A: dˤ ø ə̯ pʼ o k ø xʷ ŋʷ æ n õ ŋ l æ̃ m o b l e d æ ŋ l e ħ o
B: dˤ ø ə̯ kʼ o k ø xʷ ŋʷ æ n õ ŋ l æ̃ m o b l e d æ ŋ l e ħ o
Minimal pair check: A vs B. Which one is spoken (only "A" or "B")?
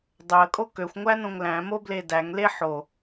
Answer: B